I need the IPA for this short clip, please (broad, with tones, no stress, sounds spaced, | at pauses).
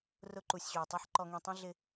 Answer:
r ʊ˦ ǃ u˨ sʲ ɕ u˩ ɪ̯ tˤ i˦ ħ ǃ ɔ˨ ŋ ĩ˨ tˤ ĩ˦ ɮ ɪ˦